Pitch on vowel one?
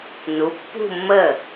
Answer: rising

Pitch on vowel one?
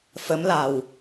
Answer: rising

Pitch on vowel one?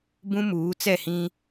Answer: high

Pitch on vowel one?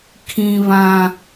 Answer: high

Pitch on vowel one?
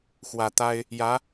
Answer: low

